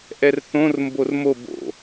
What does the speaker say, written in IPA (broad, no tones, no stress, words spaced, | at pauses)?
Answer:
ʔɛrθõr mbormo bo̰